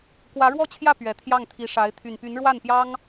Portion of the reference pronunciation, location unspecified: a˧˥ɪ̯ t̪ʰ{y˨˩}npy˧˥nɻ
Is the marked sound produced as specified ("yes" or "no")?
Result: yes